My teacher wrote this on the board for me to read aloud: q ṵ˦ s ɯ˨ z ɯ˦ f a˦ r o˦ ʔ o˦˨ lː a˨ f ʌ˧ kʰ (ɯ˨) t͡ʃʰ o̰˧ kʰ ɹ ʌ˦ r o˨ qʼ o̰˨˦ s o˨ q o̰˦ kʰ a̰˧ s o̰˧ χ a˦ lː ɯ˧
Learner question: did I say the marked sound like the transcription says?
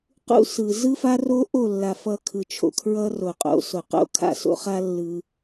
yes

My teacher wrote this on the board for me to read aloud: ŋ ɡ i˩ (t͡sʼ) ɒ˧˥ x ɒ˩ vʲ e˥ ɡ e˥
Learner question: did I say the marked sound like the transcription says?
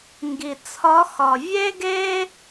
no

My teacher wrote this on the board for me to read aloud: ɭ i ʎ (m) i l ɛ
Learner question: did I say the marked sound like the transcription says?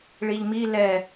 yes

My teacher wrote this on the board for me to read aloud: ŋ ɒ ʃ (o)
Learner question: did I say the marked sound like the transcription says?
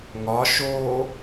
no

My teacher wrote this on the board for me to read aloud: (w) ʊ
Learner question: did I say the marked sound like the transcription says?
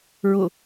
no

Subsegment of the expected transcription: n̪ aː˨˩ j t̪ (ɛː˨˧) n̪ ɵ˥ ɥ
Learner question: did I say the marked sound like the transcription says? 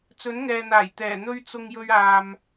no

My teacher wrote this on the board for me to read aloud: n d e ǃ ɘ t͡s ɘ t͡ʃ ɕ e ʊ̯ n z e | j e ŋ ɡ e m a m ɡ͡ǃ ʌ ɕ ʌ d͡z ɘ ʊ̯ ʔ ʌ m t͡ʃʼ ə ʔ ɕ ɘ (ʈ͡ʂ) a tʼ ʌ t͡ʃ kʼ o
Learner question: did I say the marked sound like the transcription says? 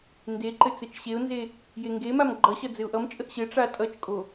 yes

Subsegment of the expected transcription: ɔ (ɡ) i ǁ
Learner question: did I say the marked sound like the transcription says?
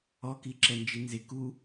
no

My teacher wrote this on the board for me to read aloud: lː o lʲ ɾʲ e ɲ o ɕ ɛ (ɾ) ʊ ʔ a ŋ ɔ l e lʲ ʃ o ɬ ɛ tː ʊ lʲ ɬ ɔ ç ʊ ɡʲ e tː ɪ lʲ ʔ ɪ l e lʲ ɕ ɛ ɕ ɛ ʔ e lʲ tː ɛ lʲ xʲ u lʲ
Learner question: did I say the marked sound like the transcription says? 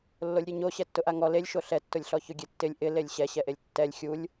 no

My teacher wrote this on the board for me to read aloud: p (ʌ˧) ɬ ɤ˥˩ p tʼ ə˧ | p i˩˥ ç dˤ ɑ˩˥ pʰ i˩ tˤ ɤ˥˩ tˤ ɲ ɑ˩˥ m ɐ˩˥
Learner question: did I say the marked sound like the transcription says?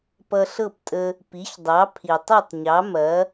yes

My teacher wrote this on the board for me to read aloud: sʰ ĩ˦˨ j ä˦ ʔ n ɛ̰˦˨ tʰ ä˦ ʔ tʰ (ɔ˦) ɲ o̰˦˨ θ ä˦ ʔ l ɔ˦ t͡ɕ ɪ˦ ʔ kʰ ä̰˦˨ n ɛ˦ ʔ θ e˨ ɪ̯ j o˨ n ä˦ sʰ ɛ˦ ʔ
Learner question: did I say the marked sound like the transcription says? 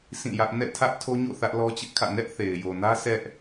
no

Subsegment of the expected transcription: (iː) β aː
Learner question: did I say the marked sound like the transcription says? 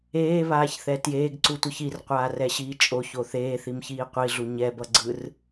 no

